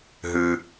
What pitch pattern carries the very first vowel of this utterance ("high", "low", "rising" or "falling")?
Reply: low